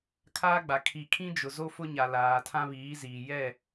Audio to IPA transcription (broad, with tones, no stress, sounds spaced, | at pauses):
kʰ aː˦ ɡ͡b a˨ kʰ i˨ kʰ ĩ˦ d͡ʒ ʊ˨ z o˦ f ʊ˦ ɲ a˨ l aː˨ tʰ ã˦ β iː˨˦ z iː˨ j ɛ˦˨